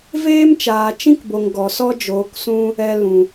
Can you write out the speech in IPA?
v eː˦ m t͡ʃ aː˨ t͡ʃ ĩ˦ k b o˨ ŋ ɡ ɔ˨ s ɔ˦ d͡ʒ oː˨˦ k s ũ˦ | ɛ˨ l ũ˨

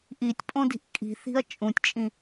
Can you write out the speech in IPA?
ʔ i tʲ pʼ õ d i̤ ʔ kʼ i̤ θ i̤ ɐ̯ t͡ʃʼ ũ tʲ t͡ʃʼ ĩ

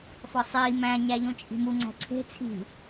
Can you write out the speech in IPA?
f ɒ sˤ iː m æ̃ ɲ æ ʎ õ t͡ʃʼ i̤ m u ŋ͡ǀ æ̤ ǀʰ e̤ t͡sʰ i̤

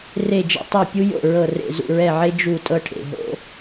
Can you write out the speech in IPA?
r e˦˨ d͡ʒ ɛ̰˥ tˤ ɛ˦˨ pʲ u˥ j o̰˦˨ ɹ ɤ˦˨ r ḛ˦˨ z ṵ˦˨ ɹ ɛ˦˨ ʕ e˥ d͡ʒ u˦˨ tʼ ɤ˥ ʈʰ ḛ˦˨ ɦ o̰˥

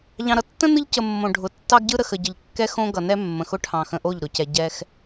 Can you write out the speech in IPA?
ʎ ɑ̃˨ ɾ ʌ˨ tː ə̃˦ n ɯ˦ ʎ c ə˨ mː õ˨ ɖʱ ʊ˨ tː ɑ˦ ɡ ɟ ɯ˦ ɾ ə˨ x ə˨ ɟ ə˨ ʎ kː ɛ˦ x õ˦ ɡ ʌ˨ n ɛ˦ mː ə̃˨ x ʊ˦ ʈʰ ɑ̃˨ x ə̃˨ ʔ o˦˨ ʎ ɾ ʊ˨ c ɛ˨ ɟ ɛ˦ x

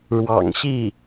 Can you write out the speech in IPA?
ɻ w ɑ̰˨˩ ŋ ɕ i˥˩

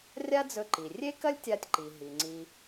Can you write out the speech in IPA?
rʲ a˥ d͡z ɵ˧ ǃ i˩ rʲ e˥ k ɐ˥ lʲ tʲ a˧ tʲ ǃ i˩ ɦ i˩ ŋ͡ǀ i˧

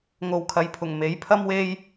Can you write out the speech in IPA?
ŋ o˨ w kʰ ɐ˨ j pʰ ʊ˨˩ ŋ m e˨˥ j pʰ ɐ˥ m w e˥ j

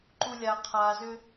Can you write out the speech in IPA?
ǃ u lʲ a qʰ a z ʏ

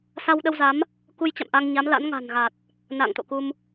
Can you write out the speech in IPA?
s a˧ w ɗ ə˧ w z a˨˦ m | k u˧ j t͡ɕ a̰˧˨ m ʔ a˧ ŋ ɲ a˨˦ m l a̰˧˥ n ŋ a̤˨˩ n ɣ a˨˩ t̚ | n a̰˧˨ ŋ t̪ o̰˧˨ k u˧ m

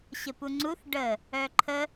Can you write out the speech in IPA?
ɕ ə p u ŋ͡ǀ u θ ɖ ə | œ ǃʰ ə

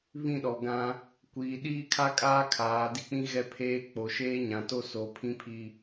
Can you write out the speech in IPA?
β ĩ˦˨ ɗ ɔ˨ ɡ ã˦ | kʷ iː˨ ɗ iː˦ kʰ a˦ kʼ aː˦ kʰ aː˨˦ d i˦ k͡p ĩ˦ ɣ ɛ˦ pʰ eː˦ k͡p o˨ ʃ eː˦ ɲ ã˨ t o˦ s o˨˦ pʰ ĩ˦ pʰ i˦

